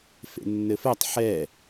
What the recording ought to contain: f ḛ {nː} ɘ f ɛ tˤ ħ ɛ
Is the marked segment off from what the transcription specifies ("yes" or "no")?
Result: no